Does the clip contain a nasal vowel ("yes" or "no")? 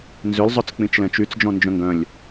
yes